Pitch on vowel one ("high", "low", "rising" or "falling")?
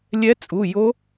rising